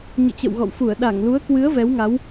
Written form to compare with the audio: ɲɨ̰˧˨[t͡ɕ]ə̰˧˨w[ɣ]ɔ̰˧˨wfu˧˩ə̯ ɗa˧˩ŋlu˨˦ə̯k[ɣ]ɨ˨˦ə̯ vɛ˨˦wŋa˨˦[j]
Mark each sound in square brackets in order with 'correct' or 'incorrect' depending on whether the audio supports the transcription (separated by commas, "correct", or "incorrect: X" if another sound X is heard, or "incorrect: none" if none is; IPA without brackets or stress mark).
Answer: correct, correct, incorrect: w, incorrect: w